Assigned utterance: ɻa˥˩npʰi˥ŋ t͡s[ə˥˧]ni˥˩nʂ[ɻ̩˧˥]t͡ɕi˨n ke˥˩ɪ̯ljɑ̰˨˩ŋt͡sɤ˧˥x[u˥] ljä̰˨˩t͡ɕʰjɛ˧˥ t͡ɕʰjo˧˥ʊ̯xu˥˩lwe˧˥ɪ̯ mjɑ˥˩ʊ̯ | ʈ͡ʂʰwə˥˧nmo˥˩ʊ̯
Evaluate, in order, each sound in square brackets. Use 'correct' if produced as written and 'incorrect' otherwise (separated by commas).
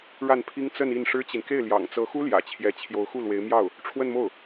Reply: correct, incorrect, correct